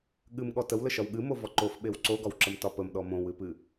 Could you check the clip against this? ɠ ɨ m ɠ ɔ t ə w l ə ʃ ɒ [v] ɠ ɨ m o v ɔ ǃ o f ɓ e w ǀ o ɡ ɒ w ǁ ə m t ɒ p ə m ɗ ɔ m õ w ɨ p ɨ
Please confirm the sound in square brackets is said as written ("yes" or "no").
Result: no